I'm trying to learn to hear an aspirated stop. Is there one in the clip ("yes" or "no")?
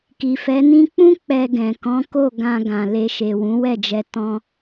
no